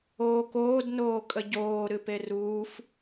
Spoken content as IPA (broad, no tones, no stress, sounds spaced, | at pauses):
oː k oː d n oː kʼ ə ɟ oː ɾ ɨ p e r uː f